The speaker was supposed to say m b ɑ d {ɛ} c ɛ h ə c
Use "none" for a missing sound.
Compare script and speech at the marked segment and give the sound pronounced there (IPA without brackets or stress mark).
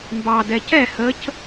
ɛ